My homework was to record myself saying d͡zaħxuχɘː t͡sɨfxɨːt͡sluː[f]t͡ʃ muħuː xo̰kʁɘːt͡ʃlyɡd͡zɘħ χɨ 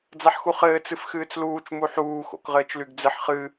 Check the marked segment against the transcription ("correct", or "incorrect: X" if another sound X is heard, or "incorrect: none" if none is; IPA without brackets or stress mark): incorrect: none